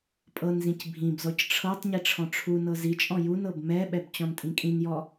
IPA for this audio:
pʼ ɤ n z ĩ c bʱ ĩ b z ɔ c ʈ͡ʂʰ ɤ tˤ ɲ i ʈ͡ʂʰ ɔ̃ ʈ͡ʂʰ u n ɤ z i t͡ʃʼ ɔ̃ j u n ɤ b m ɛ ɓ ɛ b t͡ɕ ɔ̃ n tʼ ĩ kʼ ĩ n j ɔ

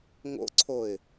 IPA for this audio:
ŋ o̰ ǀʰ o ɪ̯

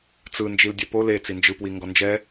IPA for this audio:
t͡s ɯ n d͡ʒ i l dʲ ɛ p o l e t͡s i n d͡ʒ ɯ p w i ŋ ɡ ɔ n d͡ʒ ɛ

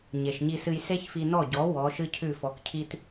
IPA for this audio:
ɲ e˩ ʃ ɲ i˧ s ɨ˧ j s e˥ ç f i˧ n ɔ˥˩ ɟ ɔ˩˥ w ɔ˩˥ ʃ ɨ˥ cʰ ʉ˥˩ f ɔ˩˥ k cʰ i˥ t

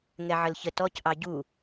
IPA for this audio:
ŋ ɛ ʕ ə l ç ə t ɔ c ʔ ɑ ɟ u

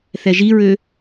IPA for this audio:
θ ɛ ʒ i ɹ ø

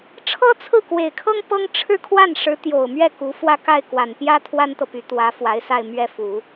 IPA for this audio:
ʈ͡ʂʰ ɤ˥ t͡sʰ ɹ̩˥˩ k w e˨˩ ɪ̯ kʰ ɤ˥ ŋ p ɤ˥ ŋ ʈ͡ʂʰ ɻ̩˥˧ kʰ w a˥˩ n ʂ ɻ̩˧˥ t̪ j o˨˩ ʊ̯ m ɥ ɛ˥˩ k u˧˥ f w ä˥˧ k a˥˩ ɪ̯ k w a˨˩ n p j ä˥ t̪ʰ w a˥ n t̪ ɤ˨ p y˧˥ t̪ w ä˧˥ f w a˧˥ ɪ̯ s a˥˧ ɪ̯ m ɥ ɛ˥˩ f u˨˩˦

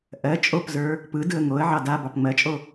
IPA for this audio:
ʔ ɜ t͡ʃʼ o p z ə˞ | p ɯ d ɯ ə̯ ŋ o ə̯ ʕ ɑ d a b ɑ p ŋ͡m ɜ t͡ʃʼ o

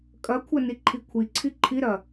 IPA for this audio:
kʼ ɐ kʷʰ ɐ n i ǃʰ i kʷʰ i ǀʰ i ǃʰ i ɾ ɐ

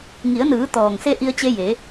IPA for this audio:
ŋ i˩˧ ə̯ n ɯː˩˧ t̪ ɔː˩ ŋ s e˧ ʔ i˧ ə̯ t͡ɕ e˧ j e˩˧

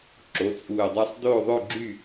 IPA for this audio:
ǁ o˩˧˩ t͡sʼ uː˧˩ ə̯ dˤ ɑ˥ sˤ d oː˥˨ ðˤ ø˥˨ ɡ͡ǁ y˥˨

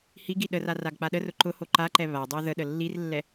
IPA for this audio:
h i ɡ i ɗ ə r a r a ɡ k͡p a ɗ ə r ʊ ǃ ʊ h o ǃ a ǃ ɛ β a dˤ ə w ð ə ɗ ə lː i r lː ɛ

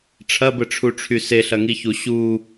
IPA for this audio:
ʈ͡ʂʰ ɐ b ə ʈ͡ʂʰ u ʈ͡ʂʰ y s e ɬ ɐ ŋ i ç u ɕ u

